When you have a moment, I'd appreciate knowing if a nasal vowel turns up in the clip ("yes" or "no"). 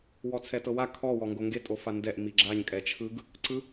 no